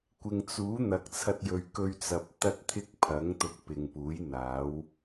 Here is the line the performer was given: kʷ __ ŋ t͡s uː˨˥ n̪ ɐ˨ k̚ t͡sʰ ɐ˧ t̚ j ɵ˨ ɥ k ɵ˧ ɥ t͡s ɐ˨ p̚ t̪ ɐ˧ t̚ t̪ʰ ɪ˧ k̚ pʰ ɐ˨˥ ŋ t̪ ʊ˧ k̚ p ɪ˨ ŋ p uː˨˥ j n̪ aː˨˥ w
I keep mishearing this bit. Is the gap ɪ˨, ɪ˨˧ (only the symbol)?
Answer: ɪ˨